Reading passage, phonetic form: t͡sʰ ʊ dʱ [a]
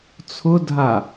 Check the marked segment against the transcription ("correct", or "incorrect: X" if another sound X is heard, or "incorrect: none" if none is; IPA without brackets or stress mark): correct